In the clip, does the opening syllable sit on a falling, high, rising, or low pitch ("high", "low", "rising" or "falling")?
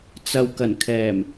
low